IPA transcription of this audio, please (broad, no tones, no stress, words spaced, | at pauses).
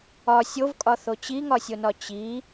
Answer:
ɒ sʲovkʼɒθo t͡ɕiŋɒsʲonɒ t͡ɕi